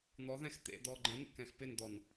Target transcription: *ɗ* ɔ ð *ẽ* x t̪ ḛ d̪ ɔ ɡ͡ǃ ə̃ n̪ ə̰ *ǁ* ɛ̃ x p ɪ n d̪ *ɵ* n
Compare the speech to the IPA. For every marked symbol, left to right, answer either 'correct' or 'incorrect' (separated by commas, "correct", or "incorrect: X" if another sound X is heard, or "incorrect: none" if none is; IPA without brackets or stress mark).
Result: incorrect: n̪, incorrect: ɛ̃, incorrect: k, incorrect: ɔ